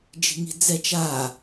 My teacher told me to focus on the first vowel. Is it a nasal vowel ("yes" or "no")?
no